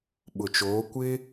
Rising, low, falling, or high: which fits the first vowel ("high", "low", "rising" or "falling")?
low